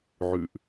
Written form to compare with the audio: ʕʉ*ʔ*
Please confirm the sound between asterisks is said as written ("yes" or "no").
yes